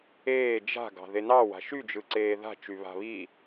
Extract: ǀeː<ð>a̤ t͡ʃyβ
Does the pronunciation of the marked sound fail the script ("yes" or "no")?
no